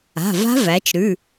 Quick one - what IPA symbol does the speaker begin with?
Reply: a̤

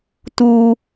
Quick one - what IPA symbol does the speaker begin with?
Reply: t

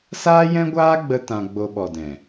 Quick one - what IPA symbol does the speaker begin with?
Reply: s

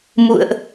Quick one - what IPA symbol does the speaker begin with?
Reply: m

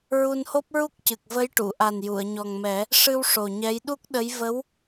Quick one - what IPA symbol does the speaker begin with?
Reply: ɹ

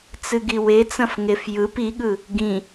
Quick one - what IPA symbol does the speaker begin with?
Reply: t͡s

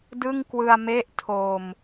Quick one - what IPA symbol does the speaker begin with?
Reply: d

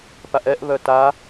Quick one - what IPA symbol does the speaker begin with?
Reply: p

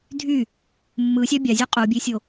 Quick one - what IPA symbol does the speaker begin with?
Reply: dʱ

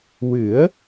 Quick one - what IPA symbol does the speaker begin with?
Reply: w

